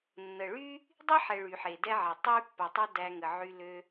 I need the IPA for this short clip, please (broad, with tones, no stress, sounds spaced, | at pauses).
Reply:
nː ə˨ ɭ y˦ | dˤ i˦ ħ ɛ˨ ɭ y˨ ħ e˨ d ɛ˦ ʕ ɛ˨ tˤ y˦ pː a˨ tˤ a˦ d æ˧ ŋ ə˨ ʕ y˧ l ø˧